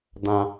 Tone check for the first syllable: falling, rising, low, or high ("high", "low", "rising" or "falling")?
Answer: high